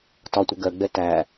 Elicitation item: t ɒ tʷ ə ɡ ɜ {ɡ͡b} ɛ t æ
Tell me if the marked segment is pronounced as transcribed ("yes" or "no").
yes